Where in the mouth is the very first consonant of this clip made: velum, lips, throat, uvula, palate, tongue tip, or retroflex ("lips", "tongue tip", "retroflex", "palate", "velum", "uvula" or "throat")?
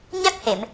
palate